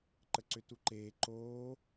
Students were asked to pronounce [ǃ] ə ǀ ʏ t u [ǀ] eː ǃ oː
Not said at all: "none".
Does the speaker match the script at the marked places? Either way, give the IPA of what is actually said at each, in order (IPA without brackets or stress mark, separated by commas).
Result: ǃ, ǃ